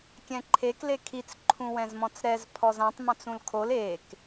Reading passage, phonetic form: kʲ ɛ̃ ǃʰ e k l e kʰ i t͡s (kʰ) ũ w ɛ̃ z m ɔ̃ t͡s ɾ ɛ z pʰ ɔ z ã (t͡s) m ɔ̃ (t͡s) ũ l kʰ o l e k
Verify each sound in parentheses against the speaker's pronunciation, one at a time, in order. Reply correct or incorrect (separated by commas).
incorrect, incorrect, correct